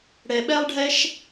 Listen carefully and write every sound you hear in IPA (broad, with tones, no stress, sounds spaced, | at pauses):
ɽ ɛ˩ ɓ ɛ˥ lˠ ɖʱ ɛ˥ ʃ